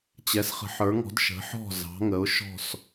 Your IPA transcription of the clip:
t͡ɕ ɛ˩˧ s χ ə̤˩˧ ħ ə˞˩˧ ŋ ɔ̤˩˧ d ʃ ə̤˩˧ ħ ɔ̤˧˩ z ɑ̤˩˧ ŋ ə˩˧ ʊ̯ ʃ ɔ̤˧˩ s

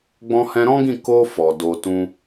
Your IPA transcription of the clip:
ɡ͡b ɔ̃˧ h ɛ̃˧ ɾ ɔ̃˦ ɡ ĩ˦˨ k o˧ f ɔ˨ d o˧ t ũ˦

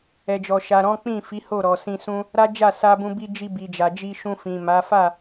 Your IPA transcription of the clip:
ɛ˨ d͡ʒ ɔ˨ ʃ a˨ ɾ ɔ̃˨˦ k͡p ĩ˦˨ f i˨˦ h o˦˨ ɾ ɔ˨ s ĩ˧ s ũ˦ | ɾ a˦ d͡ʒ a˦˨ s a˧ b ũ˧ b i˧ d͡ʒ i˧ b i˨ d͡ʒ a˨ d͡ʒ i˧ ʃ ũ˧ f ĩ˨ m a˨˦ f a˦˨

